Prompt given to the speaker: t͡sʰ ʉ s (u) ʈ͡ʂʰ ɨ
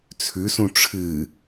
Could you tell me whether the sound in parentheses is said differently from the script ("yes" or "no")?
yes